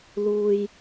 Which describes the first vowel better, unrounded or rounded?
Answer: rounded